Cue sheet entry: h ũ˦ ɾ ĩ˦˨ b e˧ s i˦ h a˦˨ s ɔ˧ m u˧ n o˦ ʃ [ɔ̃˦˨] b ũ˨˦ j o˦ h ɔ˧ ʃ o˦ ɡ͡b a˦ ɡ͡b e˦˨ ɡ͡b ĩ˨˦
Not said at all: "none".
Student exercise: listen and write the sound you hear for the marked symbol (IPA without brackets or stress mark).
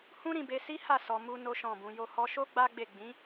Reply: ɔ̃˦˨